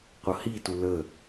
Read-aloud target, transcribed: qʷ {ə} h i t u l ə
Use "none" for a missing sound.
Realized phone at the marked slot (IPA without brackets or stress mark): ʌ